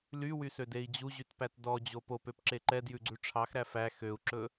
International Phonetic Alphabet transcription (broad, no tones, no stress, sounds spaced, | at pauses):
l y w y s ø d e i̯ d͡ʑ u ʑ y t p æ t d ɔ d͡ʑ o p o p ø p ǁ e ǃ ɛ d j ʉ ɡ͡ǀ ʉ ʈ͡ʂʰ ɑ x ɾ æ f æ x ø u̯ ǁ ɵ